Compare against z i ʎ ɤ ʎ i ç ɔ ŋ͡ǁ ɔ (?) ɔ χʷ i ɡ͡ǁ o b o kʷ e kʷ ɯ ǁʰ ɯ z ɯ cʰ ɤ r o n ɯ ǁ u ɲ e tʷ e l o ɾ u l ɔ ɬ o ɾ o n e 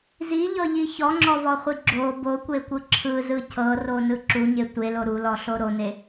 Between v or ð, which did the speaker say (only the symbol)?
v